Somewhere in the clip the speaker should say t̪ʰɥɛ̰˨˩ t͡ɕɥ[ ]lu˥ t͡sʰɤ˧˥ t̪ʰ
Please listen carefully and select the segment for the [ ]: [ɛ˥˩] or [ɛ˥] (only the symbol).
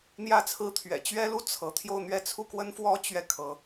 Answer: ɛ˥